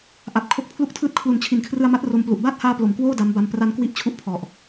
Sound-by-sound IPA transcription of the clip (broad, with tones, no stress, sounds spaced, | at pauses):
ʔ a˨˩ p̚ kʰ o˦˥ k̚ pʰ l u˥˩ k̚ tʰ ɯː˥˩ t̚ kʰ l u˨˩ n t͡ɕʰ i˩˦ n kʰ r ɯ˧ a̯ m a˦˥ t̚ r o˧ m p l u˨˩ ʔ b aː˥˩ t̚ h aː˧ p l o˩˦ m k w oː˥˩ d a˦˥ m b a˧ m p r a˧ n k w i˦˥ ʔ t͡ɕʰ u˥˩ ʔ pʰ ɔ˨˩ ʔ